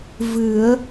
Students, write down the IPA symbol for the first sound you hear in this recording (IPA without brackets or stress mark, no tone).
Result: v